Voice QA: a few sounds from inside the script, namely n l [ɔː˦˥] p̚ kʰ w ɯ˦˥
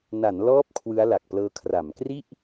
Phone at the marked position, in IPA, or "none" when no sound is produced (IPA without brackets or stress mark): ɔː˦˥